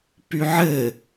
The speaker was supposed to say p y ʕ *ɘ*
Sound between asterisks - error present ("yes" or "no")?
no